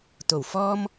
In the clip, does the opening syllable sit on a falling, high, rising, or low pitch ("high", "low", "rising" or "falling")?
low